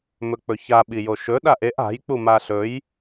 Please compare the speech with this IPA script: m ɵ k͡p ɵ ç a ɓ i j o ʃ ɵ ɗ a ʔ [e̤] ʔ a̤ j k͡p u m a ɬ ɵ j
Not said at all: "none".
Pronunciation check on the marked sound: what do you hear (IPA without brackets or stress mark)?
e